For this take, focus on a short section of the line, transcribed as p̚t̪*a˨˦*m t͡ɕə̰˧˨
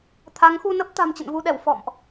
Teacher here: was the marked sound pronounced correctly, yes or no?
no